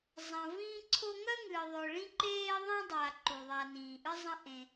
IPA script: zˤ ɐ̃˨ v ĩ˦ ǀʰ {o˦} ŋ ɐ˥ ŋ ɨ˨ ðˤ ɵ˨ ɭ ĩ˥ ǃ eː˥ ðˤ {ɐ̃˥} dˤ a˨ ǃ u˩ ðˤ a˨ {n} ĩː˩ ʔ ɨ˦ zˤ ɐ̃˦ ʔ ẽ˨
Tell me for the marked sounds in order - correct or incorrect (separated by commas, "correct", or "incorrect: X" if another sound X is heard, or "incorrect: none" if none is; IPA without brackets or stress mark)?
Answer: correct, correct, correct